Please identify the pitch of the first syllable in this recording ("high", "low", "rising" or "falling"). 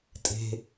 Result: low